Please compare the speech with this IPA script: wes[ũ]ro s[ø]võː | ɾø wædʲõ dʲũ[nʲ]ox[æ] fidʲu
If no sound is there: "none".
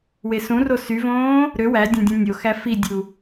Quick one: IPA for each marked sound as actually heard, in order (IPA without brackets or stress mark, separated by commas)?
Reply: ũ, y, nʲ, æ